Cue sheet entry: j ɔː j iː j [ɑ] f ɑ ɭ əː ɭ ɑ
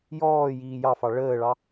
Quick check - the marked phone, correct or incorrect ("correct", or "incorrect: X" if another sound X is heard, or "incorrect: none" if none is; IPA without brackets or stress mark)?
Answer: correct